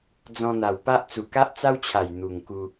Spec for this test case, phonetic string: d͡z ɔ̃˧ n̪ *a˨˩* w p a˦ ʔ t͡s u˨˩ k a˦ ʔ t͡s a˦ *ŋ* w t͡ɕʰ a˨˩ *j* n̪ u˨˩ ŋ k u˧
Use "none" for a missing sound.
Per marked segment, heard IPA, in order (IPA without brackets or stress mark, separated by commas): a˨˩, none, j